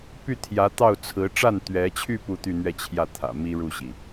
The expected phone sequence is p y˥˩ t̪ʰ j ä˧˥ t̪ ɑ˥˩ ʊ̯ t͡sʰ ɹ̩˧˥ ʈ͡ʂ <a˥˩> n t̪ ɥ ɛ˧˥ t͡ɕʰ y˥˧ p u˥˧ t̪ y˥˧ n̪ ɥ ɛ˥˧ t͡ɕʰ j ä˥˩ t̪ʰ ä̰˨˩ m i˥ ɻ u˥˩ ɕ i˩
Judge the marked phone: correct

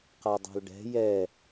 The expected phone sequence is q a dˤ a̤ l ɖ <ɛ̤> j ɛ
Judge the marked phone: correct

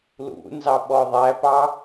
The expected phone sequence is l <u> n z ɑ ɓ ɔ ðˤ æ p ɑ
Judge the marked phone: incorrect: ṵ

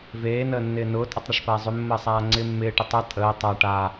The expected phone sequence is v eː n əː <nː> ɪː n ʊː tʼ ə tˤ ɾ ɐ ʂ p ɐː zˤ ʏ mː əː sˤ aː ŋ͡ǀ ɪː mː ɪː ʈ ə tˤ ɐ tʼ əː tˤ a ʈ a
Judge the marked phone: correct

